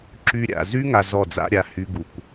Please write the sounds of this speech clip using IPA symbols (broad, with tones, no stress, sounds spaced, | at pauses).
ǁ y˧ ɾʲ a̰˨ z y˦ ŋ a˧ z ɔ˦˨ d͡z a̰˦ ɾʲ a˨ h y˧ ɡ u˨ kʷ